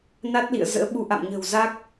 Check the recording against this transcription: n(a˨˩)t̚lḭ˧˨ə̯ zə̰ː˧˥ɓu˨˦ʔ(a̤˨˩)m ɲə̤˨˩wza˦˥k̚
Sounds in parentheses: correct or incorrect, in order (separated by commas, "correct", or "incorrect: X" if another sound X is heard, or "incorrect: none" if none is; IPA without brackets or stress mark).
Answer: incorrect: a˦˥, incorrect: a̰˧˨